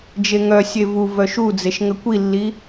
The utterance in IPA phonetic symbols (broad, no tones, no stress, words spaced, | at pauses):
d͡ʒeŋœsʲe vu vœʃud͡zeʃ ŋəkʷilːi